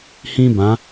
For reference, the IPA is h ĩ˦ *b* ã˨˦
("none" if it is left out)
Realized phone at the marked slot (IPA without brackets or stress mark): b